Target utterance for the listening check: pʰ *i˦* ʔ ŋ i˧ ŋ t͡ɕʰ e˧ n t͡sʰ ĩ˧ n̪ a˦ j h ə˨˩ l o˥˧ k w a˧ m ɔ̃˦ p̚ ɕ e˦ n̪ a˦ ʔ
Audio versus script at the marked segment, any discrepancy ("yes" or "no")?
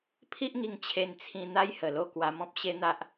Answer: no